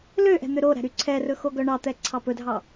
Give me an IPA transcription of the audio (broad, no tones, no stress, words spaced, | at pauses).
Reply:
løʔɛ̤ n̪øɾoɾæ̤ ɾyǀʰɛrɵ xoɡœɳɑt̪ɛ ǀʰɑpɵdʱɑ